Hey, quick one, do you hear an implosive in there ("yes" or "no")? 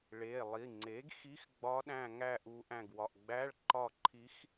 yes